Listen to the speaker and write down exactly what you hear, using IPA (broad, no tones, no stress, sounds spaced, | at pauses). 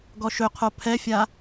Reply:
ɡ ɔ ʃ ɵ qʰ o pʰ ɛ fʲ a